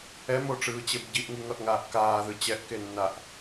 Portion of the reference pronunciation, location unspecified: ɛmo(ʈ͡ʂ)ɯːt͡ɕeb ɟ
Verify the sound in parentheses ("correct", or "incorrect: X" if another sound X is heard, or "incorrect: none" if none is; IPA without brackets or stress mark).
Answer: correct